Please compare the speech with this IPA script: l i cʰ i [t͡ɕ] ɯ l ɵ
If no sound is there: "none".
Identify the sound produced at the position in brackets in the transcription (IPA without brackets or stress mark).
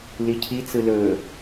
t͡s